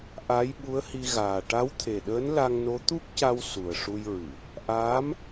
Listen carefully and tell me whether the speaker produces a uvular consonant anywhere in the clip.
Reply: no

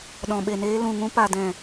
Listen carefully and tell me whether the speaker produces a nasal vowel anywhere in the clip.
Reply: yes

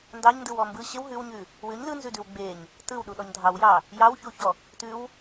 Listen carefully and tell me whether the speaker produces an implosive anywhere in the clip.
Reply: yes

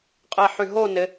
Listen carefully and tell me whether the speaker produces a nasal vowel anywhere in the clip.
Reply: no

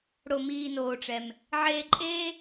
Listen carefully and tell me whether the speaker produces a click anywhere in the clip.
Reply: yes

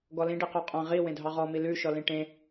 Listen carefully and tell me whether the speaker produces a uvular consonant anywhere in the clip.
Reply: yes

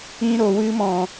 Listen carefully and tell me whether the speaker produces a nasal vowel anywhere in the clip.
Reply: yes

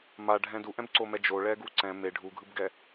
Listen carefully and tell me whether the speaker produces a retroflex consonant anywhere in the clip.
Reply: yes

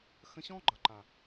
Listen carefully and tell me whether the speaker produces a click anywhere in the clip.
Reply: yes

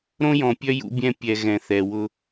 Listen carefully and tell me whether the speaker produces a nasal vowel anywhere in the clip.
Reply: yes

